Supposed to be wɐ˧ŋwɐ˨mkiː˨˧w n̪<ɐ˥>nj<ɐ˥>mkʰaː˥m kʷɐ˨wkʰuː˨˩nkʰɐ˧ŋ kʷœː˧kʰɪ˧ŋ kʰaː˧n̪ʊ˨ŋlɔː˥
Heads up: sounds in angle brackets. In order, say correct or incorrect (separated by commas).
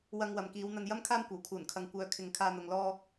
incorrect, correct